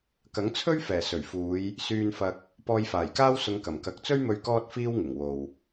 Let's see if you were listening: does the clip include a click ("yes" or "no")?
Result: no